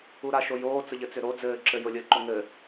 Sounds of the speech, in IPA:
uɾaʃojoː t͡səʎɘt͡sʏɾo d͡zɘːǁɘ jʊlʲəːǃʊ ŋɘː

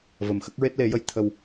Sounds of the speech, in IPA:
və˨˩mxə˦˥k̚ ɹe˦˥t̚le˨˩˦jə˧j t̪ʰə˧w

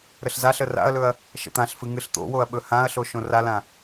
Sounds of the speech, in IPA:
ɾəɬzaɬə ra̰ɐ̯lɵɐ̯ | ʃə̰t̪ãɬfɨ ŋɨɬt̪o̰woɐ̯ ɓɵhãɐ̯ɬo ʃõralã

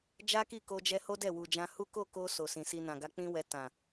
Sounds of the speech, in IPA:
d͡ʒa˦ki˦˨ko˧d͡ʒɛ˧ ho˦dɛ˦˨wu˨d͡ʒã˧ hu˦ ko˦˨ko˧ so˨sĩ˨si˧ nã˨ɡa˧k͡pĩ˦wɛ˧ tã˨

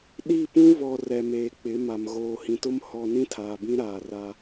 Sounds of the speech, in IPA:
ɗi˦˨pũ˦ βɔ˨ rɛ˨meː˨k͡pɪ˨˦ma˨m ɣoː˨hĩ˨tʊ˦m hɔ˦ nĩ˦tʰaː˨bĩ˦ɾaː˨ ra˦

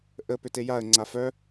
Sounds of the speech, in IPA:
ʔə pʏtejaə̯ ŋ͡ǀafœ

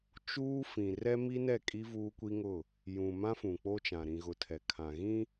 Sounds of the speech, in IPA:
t͡ʃuː˦fĩ˨ rɛ˦mi˦nɛ˦˨kʼi˦ vuː˦kʷi˦ŋʊ˦˨ | jũ˨mã˦ fũ˨k͡po˦t͡ʃã˨ ɾĩ˨ɣʊ˨ tʰɛ˨kʰã˨ɣĩ˦

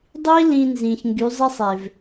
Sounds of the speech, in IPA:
dˤi˦ lĩ˧nzĩ˨ç ŋɡy˨˦zˤi˦ sˤe˨v

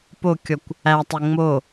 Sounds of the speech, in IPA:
pokʲɔkʷ | ætˤe ŋ͡mo

